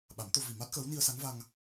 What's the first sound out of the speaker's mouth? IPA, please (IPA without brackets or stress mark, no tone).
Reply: ɓ